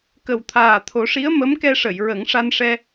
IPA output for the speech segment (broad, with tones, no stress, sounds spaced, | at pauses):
k ə˨˩ w t̪ʰ aː˨˩ t̪ʰ o˨˩˦ ʂ i˧˥ ə̯ m ə˧˥ m k ɛ˧ ʂ ə˨˩˨ j ɹ ə˨˩˦ ŋ ʂ a˧ n ʂ ɛ˧